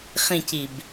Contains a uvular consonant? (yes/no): yes